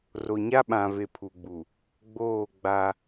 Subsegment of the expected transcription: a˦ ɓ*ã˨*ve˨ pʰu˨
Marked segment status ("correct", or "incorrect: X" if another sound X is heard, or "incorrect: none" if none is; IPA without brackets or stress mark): correct